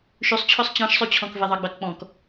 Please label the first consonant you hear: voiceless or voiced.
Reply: voiceless